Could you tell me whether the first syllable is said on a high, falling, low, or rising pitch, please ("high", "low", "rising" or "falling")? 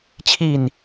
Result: falling